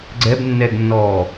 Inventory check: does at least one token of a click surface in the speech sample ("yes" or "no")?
yes